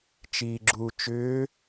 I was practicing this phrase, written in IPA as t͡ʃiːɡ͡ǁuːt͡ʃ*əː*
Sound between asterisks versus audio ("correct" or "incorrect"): incorrect